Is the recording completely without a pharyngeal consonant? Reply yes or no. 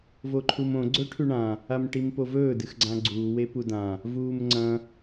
yes